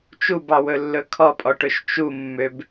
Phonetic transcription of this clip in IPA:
t͡ʃ u b ɑ w ɵ lː ɵ kʰ ɔ pʼ ɔ ʈ ɵ ʃ t͡ʃ u mː ø b

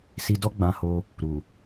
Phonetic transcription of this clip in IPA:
s i˧ d ɔ˦ ɡ͡b ã˧ h o˧ | ɾ u˨

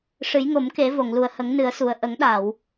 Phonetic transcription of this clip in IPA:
ʂ ɨ˨˩˦ j ŋ o˨˩˦ m k e˨˩˦ v o˨˩˨ ŋ l u˨˩ ə̯ h ə˨˩˦ ŋ n ɨ˨˩˦ ə̯ s u˨˩ ə̯ ʔ ə˨˩˦ ŋ ɗ a˨˩˨ w

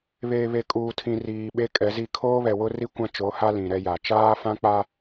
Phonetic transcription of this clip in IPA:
β eː˨ β e˨ kʼ uː˨ tʰ ĩ˨ r iː˨ ɓ e˦ kʼ ɛ˨˦ z i˦ kʰ oː˦ β ɛ˨ w ʊ˦ r i˦ kʷ ã˦ t͡ʃ o˨˦ h a˦ l ĩ˨ ɾ ɛ˦ j a˨ t͡ʃ aː˦ f ã˦ k͡p a˦

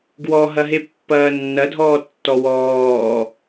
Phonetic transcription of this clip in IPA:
ɡ w ɔ ɦ ɐ ɦ e pː ɐː nː ɐ dʱ ɔː tː ɔ w ɔː

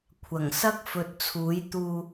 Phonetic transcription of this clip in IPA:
kʷʰ ɐ˨˩ ŋ s ɐ˥ k̚ f ɵ˨ t̚ t͡sʰ uː˨˥ j t̪ uː˧

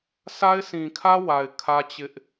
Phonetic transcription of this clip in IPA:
s a˦ ɪ̯ s ĩ˨ kʰ ä˦ w a˨ ɪ̯ kʰ ä˦ t͡ɕ ɪ˦ ʔ

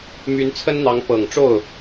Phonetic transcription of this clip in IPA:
m y˧˥ n t͡sʰ ə˥ n n̪ ɑ˧˥ ŋ p ɤ˨˩ ŋ ʈ͡ʂ o˥˩ ʊ̯

